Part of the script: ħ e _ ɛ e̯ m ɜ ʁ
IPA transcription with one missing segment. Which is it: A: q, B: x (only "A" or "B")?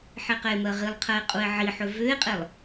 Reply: A